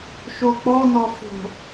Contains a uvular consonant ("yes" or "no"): no